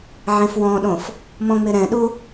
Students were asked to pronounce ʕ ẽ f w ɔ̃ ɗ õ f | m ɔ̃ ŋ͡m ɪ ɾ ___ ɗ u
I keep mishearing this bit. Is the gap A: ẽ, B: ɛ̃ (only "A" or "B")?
B